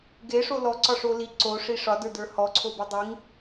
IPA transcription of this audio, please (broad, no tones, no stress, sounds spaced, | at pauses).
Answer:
ɡ e ʂ o l ɔ ǀ ɒ ʂ o l i ǀ o ʂ i ʂ ɒ d ə˞ d ə˞ h ɔ ǀʰ o b i dˤ i ŋ